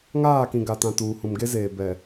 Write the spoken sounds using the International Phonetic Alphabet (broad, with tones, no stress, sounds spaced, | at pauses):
ŋ aː˦˨ k ĩ˨ ɡ a˨ t ã˨ t uː˨ h ũ˨ m ɡ e˦ z eː˨ b ɛ˨